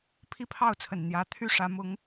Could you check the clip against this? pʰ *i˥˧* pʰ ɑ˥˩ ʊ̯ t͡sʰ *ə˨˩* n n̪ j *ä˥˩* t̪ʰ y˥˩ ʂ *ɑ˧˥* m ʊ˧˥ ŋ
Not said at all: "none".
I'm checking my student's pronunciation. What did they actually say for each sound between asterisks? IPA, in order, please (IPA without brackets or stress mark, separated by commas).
i˥˧, ə˨˩, ä˧˥, ä˧˥